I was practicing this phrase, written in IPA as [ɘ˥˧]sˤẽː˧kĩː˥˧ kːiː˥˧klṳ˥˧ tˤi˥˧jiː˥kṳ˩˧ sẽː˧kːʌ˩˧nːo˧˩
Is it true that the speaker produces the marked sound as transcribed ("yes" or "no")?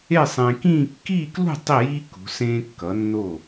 no